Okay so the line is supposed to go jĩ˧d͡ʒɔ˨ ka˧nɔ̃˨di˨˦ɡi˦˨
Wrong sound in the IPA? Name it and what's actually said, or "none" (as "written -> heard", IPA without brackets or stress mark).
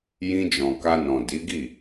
ɔ˨ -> ɔ̃˨